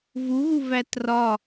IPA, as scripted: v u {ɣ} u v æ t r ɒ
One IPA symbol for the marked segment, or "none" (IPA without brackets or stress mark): ɣ